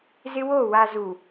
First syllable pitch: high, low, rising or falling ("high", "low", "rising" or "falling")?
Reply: high